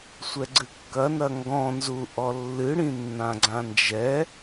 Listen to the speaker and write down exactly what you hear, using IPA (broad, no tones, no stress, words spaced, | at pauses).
sʷɛɡ͡ǀɨkːɐ nɐŋɡɔ̃nzu ʔɔlːɨɽĩ nːãɡ͡ǀãnd͡ʒɛ